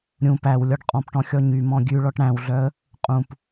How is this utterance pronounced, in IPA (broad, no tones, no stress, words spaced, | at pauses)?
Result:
ɾʲũ pæw lʲɔɖqʼɔ̃pʈɔ̃ xʲɔɲymɔ̃ ɡʲʉɭɔʈ ɽæ̃wɮœə̯ | qʼũp